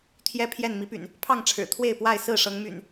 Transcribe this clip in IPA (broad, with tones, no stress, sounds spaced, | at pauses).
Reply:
t̪ʰ j ɛ˦ pʰ j ɛ˥˨ n m i˨˦ p y̰˨˩ n | pʰ ɑ˥˨ ŋ ʈ͡ʂʰ ɻ̩˨˩ t̪ʰ w e˥˨ ɪ̯ p w a˥˨ ɪ̯ s ɹ̩˥˨ ʂ ɤ˨˦ ŋ m y̰˨˩ n